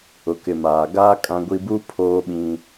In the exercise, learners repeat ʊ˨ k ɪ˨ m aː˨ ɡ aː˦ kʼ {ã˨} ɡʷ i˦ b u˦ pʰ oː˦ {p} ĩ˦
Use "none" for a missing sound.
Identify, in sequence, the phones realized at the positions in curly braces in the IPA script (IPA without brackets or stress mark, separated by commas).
ã˦, ɓ